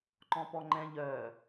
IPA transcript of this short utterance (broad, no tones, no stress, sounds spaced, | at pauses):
ǃ ɔ̃ p ɔ ŋ͡ǃ ɛ̃ ʎ œ